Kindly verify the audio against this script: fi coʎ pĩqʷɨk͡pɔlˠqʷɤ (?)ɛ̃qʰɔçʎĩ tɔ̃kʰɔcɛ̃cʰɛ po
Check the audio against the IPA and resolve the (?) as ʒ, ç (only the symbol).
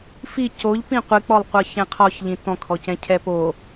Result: ç